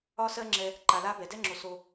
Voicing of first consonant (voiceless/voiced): voiceless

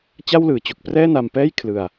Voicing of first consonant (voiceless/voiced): voiceless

